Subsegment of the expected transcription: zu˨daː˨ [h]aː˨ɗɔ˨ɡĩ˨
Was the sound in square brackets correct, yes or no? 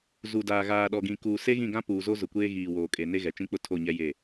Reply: no